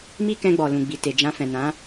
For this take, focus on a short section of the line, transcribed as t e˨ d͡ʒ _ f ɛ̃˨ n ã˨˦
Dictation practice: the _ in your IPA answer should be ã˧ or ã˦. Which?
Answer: ã˧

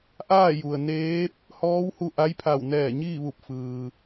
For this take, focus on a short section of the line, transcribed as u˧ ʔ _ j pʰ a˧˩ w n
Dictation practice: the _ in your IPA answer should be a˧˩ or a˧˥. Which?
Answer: a˧˥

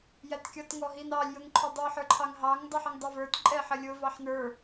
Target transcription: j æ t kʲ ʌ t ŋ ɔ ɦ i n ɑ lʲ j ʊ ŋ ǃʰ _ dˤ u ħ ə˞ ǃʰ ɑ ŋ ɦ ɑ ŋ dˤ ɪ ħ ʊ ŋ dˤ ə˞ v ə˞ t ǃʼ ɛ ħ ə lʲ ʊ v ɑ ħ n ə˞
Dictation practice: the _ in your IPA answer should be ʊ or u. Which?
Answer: ʊ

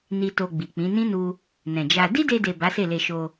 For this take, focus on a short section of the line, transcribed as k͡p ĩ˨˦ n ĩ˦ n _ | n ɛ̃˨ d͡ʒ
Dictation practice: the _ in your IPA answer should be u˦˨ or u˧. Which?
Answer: u˧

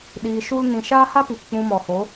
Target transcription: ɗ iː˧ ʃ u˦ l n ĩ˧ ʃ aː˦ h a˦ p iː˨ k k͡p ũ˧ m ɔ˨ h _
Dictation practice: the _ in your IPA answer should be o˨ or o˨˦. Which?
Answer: o˨˦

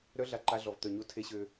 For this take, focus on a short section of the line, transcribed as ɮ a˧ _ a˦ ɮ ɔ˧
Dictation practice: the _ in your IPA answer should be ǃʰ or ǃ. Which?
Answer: ǃ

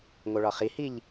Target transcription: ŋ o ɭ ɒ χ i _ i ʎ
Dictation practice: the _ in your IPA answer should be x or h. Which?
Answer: h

